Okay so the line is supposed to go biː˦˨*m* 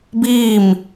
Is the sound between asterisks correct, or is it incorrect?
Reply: correct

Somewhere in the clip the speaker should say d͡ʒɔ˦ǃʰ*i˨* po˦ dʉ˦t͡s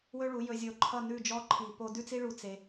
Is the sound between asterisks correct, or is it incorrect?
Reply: correct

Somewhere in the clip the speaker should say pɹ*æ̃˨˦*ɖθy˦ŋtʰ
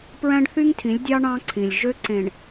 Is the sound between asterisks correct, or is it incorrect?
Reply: incorrect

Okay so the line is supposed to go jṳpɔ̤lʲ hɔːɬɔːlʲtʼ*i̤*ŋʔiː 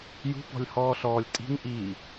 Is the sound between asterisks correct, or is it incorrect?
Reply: correct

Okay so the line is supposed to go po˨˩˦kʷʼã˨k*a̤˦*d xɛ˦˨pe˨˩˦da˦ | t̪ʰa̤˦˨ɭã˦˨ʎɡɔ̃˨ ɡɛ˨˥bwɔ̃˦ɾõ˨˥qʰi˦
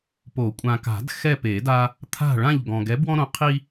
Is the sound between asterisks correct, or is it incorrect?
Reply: incorrect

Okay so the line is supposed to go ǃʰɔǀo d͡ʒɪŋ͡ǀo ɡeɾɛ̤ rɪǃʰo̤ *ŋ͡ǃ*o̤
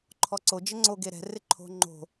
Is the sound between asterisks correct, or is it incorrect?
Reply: correct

